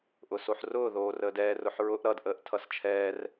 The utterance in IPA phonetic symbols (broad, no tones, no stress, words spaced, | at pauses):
ʔʊsoħrʊː ðoːrəːdɛː rʊħɹʊʔ ɾʌd ʔəːʔtʰʌst͡ʃʰɛːr